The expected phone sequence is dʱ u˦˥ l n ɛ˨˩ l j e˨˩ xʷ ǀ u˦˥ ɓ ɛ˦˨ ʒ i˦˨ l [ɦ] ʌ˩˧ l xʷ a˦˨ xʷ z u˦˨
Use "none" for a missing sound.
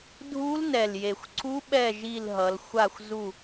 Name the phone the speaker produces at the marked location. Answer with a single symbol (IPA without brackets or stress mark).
ɦ